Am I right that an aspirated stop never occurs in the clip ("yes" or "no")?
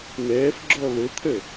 no